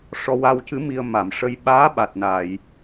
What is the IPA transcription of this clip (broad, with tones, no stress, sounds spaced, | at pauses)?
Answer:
ʂ ɔ˧ w a˧ w c ɨ˧˥ m i˧ ə̯ m a˨˩˨ m ʂ ə˧ j ɓ aː˧˥ ɓ a˨˩ t̚ n a˨˩˨ j